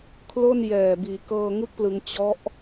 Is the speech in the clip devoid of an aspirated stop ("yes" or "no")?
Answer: no